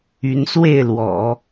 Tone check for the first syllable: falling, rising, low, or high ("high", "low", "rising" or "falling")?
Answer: rising